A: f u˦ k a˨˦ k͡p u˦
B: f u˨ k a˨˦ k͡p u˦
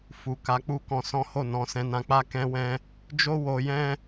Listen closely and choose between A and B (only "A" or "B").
B